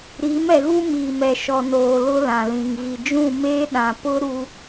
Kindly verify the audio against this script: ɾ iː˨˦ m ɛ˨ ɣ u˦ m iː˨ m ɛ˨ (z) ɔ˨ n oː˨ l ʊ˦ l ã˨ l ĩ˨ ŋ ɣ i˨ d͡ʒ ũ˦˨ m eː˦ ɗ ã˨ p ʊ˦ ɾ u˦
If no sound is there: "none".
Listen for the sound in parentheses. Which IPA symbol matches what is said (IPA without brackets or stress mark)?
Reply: ʃ